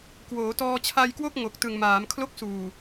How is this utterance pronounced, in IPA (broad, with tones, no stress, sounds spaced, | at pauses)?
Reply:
k w oː˩˦ t ɔː˧ t͡ɕʰ a˧ j k w o˥˩ k̚ ŋ o˨˩ k̚ t ɯ˨˩ ŋ m aː˩˦ m kʰ l o˦˥ k̚ s uː˨˩